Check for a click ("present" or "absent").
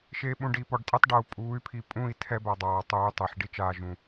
absent